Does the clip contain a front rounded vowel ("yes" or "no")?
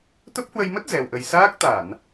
no